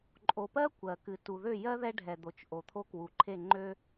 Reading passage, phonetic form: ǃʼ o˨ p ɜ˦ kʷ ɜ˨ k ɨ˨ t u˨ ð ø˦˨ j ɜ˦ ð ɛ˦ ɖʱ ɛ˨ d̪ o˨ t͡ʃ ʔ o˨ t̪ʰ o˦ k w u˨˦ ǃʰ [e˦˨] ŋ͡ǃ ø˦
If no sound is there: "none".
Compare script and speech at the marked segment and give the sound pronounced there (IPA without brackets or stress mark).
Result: e˦˨